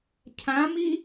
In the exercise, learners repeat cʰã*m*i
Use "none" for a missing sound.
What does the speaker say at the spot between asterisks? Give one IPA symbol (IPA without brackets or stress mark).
m